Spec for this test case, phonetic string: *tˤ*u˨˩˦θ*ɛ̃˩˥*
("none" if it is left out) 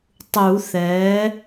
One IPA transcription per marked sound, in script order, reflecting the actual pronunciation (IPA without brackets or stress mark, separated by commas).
tˤ, ɛ˩˥